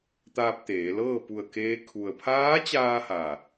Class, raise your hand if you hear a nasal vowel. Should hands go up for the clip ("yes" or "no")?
no